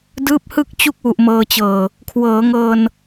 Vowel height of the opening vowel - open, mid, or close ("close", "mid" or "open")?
close